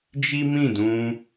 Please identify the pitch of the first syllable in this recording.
high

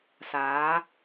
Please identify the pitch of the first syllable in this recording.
rising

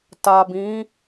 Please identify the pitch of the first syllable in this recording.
low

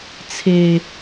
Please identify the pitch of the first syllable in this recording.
low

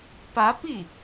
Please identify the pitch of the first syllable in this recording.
rising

